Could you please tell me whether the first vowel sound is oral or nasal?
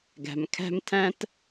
oral